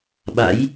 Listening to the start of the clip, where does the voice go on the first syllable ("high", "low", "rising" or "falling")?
rising